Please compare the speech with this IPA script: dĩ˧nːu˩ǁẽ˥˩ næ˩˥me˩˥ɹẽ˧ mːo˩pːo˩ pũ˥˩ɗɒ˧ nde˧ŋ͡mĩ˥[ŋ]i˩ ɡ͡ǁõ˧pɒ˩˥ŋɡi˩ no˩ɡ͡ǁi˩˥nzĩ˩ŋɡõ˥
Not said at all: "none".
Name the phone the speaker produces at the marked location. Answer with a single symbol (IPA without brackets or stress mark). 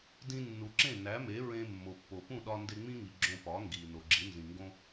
ŋ